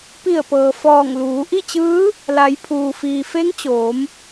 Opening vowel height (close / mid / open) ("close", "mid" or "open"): close